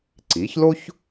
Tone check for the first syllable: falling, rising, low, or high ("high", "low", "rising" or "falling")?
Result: rising